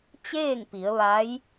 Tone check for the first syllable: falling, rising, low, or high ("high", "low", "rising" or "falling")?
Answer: falling